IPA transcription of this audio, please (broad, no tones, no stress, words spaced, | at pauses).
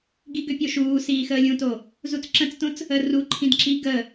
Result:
ɡiɡʏpʲoʃuː siːxəːlʲũto | zut͡sǁə̃t͡stõt͡s | ə ru ǃʰĩdǁi ɡə